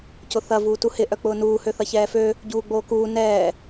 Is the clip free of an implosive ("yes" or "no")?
yes